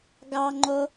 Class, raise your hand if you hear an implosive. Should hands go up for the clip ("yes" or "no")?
no